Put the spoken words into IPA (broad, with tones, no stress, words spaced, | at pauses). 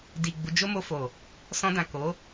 di˨ ɡ͡bu˨˦d͡ʒo˦mo˧ fo˨ | sɔ̃˧dã˨ ko˨˦